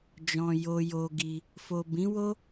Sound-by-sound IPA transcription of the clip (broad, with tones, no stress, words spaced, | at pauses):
d͡ʒɔ̃˨ jo˧jo˧ ɡi˧ | fo˨bĩ˨˦wo˦